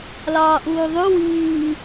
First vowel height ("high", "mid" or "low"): low